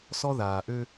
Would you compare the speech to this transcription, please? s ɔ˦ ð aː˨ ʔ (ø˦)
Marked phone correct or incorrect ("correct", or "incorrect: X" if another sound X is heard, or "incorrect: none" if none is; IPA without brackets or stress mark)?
correct